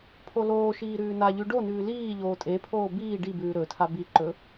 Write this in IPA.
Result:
pʰ o l oː ʃ iː ɾ ʉː n a ʎ ʉ ɖ o n ʉː l iː ʎ oː tʼ e pʰ oː b iː ɖ i b ʉː ɾ ɵ tʰ a b i ǃ ɵ

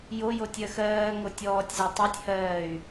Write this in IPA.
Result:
j o j o tʲ ɜ x ɜː ŋ o tʲ ɔː tʲ z a tˤ e tʲ h ɜː y̯

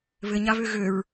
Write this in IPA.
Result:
β ɘ ɲ a β ø ɣ ø ɹ

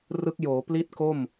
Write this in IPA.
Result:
r ɯ˦˥ k̚ j oː˩˦ p l i˥˩ t̚ k o˥˩ m

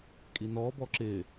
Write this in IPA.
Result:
kʼ i n ɔː b ɔ ǁ ɪː

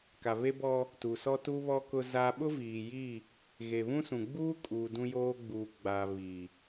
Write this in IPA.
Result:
k a˨ β e˦ b ɔ˦ | t u˨ s ɔ˦ t u˦ β ɔ˦ k ʊ˦ z a˦ ɓ ʊ˦ v iː˨ j i˦˨ | ɣ e˨ β ũ˦ s ũ˨ ɡ͡b uː˦ kʼ uː˨ d ũ˦ j oː˦ ɡ͡b uː˨ ɡ͡b aː˨ β i˨

